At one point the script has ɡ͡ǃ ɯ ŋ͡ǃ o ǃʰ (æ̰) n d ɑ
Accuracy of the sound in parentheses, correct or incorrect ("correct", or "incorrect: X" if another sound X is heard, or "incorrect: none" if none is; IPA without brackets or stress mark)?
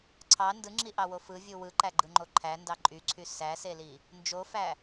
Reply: incorrect: æ